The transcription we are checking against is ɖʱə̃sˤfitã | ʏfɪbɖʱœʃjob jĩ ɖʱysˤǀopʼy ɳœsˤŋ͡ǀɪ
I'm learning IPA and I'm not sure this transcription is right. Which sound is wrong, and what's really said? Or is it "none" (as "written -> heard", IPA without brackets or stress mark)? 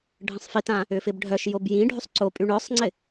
none